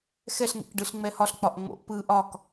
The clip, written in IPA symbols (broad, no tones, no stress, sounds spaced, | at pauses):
x ɛ ɬ ŋ ḛ k ɖ ɯ ɬ ŋ͡m ɛ h ɒ ɬ k͡p ɒ ʔ ŋ͡m o̰ ʔ p ɯ ʔ ɒ k